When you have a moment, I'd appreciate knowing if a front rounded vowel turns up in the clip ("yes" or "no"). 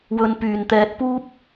yes